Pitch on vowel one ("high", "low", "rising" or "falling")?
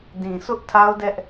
low